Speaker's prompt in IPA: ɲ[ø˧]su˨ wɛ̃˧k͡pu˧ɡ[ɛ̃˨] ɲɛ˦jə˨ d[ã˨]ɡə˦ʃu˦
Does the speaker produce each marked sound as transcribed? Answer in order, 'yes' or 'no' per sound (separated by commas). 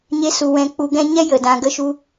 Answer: no, no, no